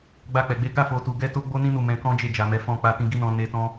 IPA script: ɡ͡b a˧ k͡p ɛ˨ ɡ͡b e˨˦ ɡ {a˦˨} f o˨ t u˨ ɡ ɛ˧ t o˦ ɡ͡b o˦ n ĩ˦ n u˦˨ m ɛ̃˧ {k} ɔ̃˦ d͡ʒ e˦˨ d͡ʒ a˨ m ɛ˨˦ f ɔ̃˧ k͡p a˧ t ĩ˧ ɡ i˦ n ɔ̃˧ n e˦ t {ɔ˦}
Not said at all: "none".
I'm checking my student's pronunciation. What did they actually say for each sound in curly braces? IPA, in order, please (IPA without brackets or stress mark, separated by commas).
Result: a˦˨, k, ɔ̃˦